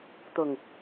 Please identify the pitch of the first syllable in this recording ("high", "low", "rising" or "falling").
low